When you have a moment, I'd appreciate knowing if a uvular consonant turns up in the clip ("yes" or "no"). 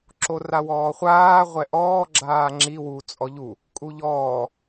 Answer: yes